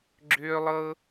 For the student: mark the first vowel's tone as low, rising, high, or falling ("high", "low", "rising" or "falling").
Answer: high